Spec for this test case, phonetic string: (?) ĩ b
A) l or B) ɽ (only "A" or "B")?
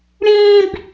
B